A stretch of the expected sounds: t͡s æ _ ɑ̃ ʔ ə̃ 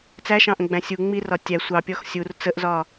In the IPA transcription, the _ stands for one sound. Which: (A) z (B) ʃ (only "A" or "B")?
B